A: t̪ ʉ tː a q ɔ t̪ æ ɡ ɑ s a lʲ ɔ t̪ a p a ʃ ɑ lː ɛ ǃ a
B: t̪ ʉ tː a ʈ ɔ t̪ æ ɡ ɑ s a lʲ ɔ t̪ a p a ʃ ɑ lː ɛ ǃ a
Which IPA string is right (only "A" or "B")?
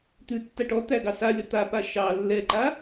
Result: B